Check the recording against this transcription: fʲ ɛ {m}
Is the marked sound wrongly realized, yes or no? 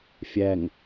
yes